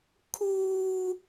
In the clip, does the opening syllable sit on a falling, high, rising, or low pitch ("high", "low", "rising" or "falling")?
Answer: high